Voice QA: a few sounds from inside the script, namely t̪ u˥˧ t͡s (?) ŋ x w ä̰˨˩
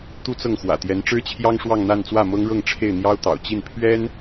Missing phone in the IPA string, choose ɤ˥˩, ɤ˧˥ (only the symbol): ɤ˥˩